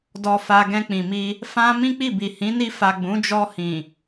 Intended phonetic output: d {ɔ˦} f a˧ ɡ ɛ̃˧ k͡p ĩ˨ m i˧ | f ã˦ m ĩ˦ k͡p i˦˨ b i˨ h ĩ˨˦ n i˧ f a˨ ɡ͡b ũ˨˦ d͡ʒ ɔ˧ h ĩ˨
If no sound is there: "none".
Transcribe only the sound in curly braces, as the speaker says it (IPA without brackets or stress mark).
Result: ɔ˧